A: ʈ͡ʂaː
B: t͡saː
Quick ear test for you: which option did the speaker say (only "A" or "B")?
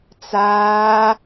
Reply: B